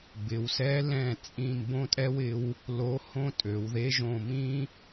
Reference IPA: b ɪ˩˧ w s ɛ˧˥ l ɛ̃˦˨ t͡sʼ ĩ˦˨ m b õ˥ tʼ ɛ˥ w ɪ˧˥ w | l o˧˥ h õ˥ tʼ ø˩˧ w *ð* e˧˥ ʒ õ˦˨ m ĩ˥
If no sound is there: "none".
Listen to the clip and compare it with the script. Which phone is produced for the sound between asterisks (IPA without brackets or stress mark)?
ð